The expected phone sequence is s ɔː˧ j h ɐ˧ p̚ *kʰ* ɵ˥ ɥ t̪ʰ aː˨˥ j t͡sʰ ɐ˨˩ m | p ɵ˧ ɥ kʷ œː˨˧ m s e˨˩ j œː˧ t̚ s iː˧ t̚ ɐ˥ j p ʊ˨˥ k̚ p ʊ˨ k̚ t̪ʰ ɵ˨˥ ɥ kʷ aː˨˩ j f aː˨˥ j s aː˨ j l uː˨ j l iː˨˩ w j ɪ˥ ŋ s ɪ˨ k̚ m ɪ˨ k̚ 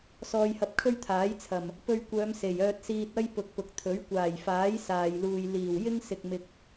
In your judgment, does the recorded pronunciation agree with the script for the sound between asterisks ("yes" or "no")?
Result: yes